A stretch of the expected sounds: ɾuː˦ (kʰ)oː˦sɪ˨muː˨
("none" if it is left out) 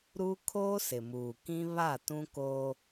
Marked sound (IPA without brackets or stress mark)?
kʰ